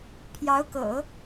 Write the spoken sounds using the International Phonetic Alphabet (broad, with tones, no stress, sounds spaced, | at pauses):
pʰ j ɑ˧˥ ʊ̯ k ɤ̰˨˩˦